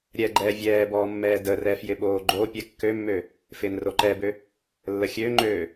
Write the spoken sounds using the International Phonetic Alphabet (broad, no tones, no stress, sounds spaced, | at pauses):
ɾʲ ɛ ɡ͡ǃ ɛː vʲ ɛː b ɔː mː ɛː d ə r ɛ f j ɪ ɓ oː ɡ͡ǃ o pʲ ɛ kː ø mː ø | f ɪː n r o ǃ ɛ b ø | lː ə xʲ ø ŋ͡ǃ øː